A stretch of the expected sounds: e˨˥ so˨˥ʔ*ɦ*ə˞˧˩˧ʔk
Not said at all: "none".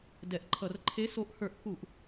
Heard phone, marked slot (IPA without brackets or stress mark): h